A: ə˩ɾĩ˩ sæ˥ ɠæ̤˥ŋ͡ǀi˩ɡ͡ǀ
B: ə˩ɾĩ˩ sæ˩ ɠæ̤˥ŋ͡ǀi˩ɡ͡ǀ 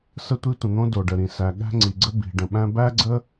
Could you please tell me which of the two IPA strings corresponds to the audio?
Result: B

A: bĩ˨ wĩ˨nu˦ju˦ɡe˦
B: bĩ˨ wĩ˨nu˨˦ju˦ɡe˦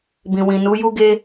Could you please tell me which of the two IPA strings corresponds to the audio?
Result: B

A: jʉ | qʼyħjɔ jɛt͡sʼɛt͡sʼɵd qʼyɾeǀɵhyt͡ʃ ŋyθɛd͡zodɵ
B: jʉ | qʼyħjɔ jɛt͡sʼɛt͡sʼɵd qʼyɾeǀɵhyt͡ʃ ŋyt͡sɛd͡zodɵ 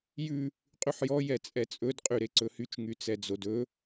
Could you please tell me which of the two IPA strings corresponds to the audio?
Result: B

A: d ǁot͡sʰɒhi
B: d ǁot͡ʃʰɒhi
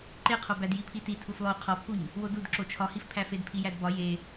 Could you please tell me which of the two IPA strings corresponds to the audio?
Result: B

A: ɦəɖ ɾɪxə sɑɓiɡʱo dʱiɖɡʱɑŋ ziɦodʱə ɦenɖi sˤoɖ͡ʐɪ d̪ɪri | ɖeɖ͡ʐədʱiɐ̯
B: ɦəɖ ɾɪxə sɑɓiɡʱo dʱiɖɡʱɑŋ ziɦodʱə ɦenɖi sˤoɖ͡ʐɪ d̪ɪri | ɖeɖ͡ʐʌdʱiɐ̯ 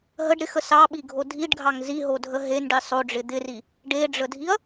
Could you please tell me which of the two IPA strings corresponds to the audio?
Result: A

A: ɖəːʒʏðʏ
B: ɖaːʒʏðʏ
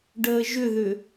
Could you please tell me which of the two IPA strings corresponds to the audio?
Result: A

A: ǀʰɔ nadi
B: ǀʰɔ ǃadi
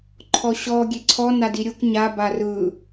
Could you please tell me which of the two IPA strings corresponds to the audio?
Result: A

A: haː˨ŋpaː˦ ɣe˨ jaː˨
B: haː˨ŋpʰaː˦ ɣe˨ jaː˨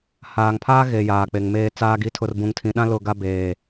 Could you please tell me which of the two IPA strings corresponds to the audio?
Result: B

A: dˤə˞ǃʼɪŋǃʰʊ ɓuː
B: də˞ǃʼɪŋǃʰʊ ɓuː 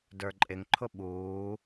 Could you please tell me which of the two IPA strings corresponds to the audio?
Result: B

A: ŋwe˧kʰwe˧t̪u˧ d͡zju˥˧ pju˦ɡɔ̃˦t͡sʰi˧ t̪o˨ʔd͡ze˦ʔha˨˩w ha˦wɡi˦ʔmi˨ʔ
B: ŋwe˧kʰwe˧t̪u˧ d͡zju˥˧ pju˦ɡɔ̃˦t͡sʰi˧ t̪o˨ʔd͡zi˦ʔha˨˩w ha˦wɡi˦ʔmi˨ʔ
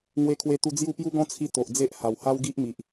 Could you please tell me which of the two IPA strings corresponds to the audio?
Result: A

